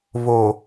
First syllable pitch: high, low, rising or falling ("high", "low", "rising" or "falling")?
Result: low